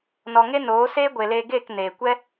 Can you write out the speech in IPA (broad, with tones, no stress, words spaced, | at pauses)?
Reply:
nɔ˨ŋe˦ noː˨˦ seː˦ɡʷe˨leː˧ ɡeː˦˨k neː˨ kʷɛ˦